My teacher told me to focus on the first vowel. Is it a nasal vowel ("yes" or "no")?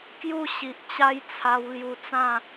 no